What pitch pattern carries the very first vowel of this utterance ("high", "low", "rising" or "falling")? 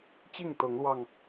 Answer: falling